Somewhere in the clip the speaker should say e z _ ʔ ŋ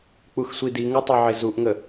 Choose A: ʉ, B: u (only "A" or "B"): B